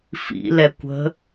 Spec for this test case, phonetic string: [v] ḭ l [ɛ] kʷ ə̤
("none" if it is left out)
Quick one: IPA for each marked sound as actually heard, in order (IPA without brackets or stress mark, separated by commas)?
f, ɛ